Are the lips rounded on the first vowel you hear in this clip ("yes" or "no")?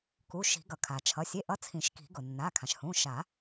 yes